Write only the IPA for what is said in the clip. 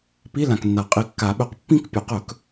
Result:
p i˧˥˧ l ã˨ k nː a˨˩˦ qʼ i˨ kː a˨˩˦ ɓ ɵ˩˥ q pː ĩ˥˧ k pʲ ɵ˨˩˦ q ɵ˨˩˦ k

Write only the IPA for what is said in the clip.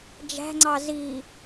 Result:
d͡ʒ æ̤ ŋ͡ǀ ɑ z i

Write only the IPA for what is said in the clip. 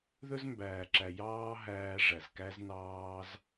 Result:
ð ɵ˦ z m b æː˨ ǁ æ˨ j ɑː˦ ɦ æː˧ ʐ æ˨ z k æ˦ z n ɑː˦ z

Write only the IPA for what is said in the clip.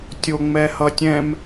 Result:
tʲ o ŋ͡m ɛ h ʌ tʲ ɛ̃ m

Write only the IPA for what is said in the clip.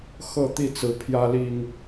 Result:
x ɤ˥˨ t̪ i˥˨ t͡s ɹ̩˨˦ pʰ j ä˦ l i˨˩ ŋ

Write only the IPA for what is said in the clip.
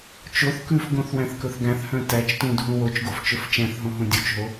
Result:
t͡ʃ o θ k ʉ f ɡ õ θ w æ̃ θ k ɵ θ ɡ æ̃ θ h œ̃ t æ t͡ʃ t ũ dʱ ũ w o t͡ʃ ɡ o f t͡ʃ ɵ f t͡ʃ æ̃ θ ɦ õ ɦ ũ dʲ u t͡ʃ ɦ o

